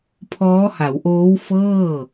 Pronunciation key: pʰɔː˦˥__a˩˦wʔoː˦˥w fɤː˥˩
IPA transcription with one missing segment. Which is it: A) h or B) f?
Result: A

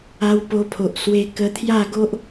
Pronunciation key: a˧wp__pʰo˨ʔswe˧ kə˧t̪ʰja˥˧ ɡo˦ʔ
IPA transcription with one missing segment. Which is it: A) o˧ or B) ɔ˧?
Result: A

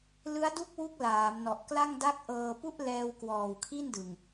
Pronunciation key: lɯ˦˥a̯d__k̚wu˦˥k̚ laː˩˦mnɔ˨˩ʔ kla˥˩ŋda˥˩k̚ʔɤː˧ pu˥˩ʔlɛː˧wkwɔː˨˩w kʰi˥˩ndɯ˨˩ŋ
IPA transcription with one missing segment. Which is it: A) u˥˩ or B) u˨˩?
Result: A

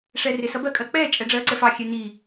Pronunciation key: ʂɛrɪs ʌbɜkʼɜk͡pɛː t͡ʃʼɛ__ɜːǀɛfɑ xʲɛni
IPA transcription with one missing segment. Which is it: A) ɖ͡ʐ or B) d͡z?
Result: A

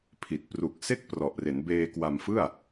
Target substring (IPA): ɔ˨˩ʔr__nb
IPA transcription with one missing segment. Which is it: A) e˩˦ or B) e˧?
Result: A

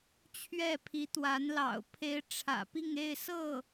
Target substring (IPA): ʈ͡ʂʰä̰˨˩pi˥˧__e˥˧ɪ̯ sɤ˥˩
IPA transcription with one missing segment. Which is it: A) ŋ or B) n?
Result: A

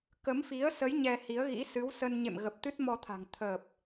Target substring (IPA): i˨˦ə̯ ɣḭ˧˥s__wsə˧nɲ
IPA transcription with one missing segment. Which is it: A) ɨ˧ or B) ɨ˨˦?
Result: B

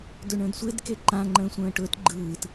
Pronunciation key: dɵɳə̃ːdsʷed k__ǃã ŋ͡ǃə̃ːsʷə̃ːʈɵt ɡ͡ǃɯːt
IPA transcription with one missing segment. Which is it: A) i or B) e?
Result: B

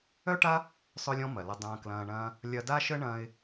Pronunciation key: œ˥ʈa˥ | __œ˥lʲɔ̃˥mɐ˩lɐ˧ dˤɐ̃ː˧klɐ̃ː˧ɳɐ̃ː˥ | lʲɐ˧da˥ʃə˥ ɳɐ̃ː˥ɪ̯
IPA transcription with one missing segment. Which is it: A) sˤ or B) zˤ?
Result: A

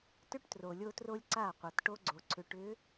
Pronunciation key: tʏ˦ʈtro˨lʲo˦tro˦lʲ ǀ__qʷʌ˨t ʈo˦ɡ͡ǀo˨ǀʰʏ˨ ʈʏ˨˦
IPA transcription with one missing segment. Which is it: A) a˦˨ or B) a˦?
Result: A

